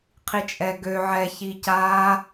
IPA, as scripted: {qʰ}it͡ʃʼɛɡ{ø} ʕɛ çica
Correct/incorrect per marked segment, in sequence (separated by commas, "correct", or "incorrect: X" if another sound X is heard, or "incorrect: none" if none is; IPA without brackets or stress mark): correct, correct